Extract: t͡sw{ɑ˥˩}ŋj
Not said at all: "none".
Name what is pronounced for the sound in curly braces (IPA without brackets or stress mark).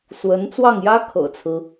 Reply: ɑ˥˩